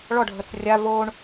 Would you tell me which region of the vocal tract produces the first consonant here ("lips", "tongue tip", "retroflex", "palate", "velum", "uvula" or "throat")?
retroflex